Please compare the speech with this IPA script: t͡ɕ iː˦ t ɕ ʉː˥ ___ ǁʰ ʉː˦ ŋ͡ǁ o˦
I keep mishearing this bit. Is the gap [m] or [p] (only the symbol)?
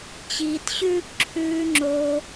p